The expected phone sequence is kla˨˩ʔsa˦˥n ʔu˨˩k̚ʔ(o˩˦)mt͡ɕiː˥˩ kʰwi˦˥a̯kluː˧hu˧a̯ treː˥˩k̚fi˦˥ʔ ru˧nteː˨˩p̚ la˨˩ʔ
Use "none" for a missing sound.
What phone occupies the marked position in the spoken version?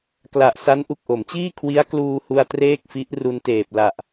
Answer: o˩˦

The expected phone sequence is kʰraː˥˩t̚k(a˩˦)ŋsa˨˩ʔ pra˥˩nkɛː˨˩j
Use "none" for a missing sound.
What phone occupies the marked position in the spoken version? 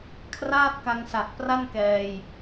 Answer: a˧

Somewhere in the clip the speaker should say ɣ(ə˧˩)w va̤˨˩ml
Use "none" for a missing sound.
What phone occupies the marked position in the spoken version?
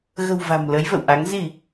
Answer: ə̤˨˩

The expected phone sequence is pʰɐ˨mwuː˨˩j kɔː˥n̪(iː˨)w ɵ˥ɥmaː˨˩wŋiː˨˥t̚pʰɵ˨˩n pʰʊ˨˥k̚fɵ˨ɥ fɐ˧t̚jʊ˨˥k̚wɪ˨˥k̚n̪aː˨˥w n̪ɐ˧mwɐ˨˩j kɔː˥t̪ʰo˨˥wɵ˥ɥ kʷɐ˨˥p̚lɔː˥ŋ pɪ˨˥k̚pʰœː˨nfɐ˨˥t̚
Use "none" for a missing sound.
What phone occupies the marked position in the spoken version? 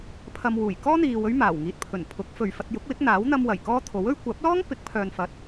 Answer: iː˨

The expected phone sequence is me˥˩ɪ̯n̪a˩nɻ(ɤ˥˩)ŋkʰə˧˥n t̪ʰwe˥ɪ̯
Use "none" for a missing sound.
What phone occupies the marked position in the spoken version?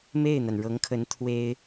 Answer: ɤ˧˥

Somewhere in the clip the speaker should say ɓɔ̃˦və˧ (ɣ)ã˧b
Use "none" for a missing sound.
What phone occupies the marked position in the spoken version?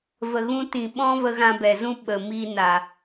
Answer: ɣ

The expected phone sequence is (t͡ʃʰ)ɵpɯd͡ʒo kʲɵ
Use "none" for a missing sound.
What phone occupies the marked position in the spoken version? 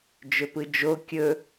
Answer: d͡ʒ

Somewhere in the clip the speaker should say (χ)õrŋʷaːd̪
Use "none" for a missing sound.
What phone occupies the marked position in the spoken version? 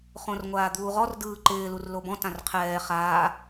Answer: χ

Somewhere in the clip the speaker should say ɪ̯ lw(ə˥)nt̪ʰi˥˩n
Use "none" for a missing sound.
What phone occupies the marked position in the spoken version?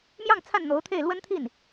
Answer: ə˥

